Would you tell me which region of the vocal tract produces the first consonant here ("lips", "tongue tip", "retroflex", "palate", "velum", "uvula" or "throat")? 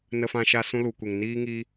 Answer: tongue tip